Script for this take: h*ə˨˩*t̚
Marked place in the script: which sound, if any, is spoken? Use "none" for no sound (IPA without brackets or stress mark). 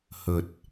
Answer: ə˨˩